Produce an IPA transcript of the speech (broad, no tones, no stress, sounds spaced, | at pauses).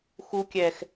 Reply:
x u kʲ ɛ x